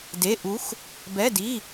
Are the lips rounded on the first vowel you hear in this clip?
no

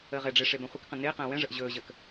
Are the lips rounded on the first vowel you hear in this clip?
no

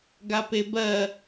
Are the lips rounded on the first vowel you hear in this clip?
no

